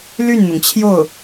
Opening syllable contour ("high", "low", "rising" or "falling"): falling